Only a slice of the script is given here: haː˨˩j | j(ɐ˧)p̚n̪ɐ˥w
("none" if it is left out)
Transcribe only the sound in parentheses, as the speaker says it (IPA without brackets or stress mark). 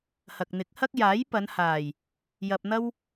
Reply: ɐ˧